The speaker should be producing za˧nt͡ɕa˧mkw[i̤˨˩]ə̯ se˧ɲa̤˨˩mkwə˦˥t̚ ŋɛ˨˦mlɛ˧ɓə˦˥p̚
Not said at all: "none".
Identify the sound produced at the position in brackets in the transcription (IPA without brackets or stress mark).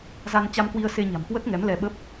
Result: i˧